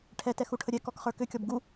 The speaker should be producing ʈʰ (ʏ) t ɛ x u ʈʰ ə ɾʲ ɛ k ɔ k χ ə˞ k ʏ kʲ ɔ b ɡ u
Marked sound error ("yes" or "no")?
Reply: yes